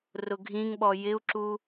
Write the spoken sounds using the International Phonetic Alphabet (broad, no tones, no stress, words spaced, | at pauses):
rʊɡʱĩŋɓɔ jɪu̯ǁu